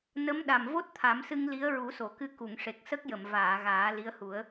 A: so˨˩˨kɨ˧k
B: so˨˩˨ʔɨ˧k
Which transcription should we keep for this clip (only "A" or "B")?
A